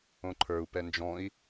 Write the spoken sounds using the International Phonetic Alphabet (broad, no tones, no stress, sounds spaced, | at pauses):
õ ǃʰ ə˞ u̯ p ɛ n d͡ʒ ɔ̃ i̯